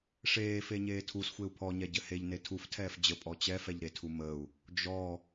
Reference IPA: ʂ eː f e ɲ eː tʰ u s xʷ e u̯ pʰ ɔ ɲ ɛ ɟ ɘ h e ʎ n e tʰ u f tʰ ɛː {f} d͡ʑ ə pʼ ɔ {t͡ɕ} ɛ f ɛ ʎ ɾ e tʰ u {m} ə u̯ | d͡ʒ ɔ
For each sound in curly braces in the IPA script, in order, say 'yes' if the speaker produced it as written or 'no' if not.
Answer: yes, yes, yes

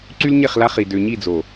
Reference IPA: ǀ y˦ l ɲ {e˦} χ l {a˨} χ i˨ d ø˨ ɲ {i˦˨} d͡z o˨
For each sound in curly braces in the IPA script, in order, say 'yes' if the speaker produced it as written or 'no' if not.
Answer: no, no, yes

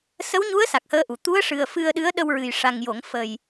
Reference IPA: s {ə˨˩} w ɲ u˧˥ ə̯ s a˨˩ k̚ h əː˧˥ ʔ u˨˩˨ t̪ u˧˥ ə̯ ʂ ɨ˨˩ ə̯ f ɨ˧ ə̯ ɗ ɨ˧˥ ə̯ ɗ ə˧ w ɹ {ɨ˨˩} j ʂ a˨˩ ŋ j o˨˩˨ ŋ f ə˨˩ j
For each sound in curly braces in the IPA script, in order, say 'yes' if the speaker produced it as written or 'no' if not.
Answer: no, yes

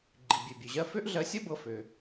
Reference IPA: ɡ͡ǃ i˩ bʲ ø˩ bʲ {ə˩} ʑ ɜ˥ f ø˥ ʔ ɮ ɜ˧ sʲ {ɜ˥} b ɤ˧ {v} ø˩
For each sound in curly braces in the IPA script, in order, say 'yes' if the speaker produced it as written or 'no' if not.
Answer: no, yes, no

